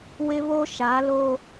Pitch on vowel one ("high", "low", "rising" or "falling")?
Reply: high